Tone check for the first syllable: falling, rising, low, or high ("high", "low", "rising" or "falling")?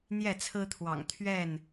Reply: falling